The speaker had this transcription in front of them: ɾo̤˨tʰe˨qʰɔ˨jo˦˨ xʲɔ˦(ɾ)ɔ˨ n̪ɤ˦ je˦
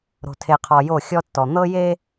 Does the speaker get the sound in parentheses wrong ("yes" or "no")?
yes